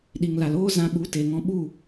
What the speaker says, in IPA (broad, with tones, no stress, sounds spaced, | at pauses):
ɗ i˨ ŋ l a˨ l oː˦ z ã˧ ɓ u˨˦ t e˨ ŋ ɔ̃˧ ɓ u˦˨